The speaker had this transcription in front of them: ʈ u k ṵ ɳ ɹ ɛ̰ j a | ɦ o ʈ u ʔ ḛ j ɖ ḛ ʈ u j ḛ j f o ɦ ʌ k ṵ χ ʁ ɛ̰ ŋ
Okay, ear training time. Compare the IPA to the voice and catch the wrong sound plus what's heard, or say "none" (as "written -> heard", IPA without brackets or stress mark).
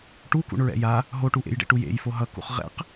ŋ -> q